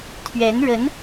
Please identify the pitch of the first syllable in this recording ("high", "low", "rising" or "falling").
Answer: rising